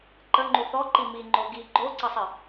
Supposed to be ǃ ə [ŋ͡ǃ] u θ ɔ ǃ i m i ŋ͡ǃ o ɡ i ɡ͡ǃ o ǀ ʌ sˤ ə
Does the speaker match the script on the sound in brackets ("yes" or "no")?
yes